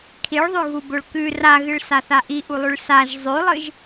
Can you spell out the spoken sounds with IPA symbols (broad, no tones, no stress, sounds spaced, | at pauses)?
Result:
kʰ i ɭ ðˤ ʉ ɣ u b o ɭ k ʉ r a ɣ ɨ ɭ s a θ a ʔ i ʔ u lˠ ʉ ɭ s a ʒ zˤ ʉ lˠ ɨ ʒ